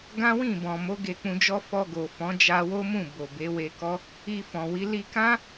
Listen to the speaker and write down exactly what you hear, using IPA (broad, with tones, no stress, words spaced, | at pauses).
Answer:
ɡã˦wĩ˦˨bɔ̃˨mo˨˦ ɡe˧k͡pũ˧d͡ʒɔ˦ fɔ˧ɡo˨fɔ̃˨˦ d͡ʒa˧wo˦mũ˦˨ bo˨be˨˦we˧kɔ˦ | i˧fɔ̃˨wi˨˦ li˧kã˦